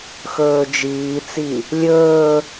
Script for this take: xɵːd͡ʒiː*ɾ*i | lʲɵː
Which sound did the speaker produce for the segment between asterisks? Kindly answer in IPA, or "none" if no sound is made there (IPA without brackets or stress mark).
t͡s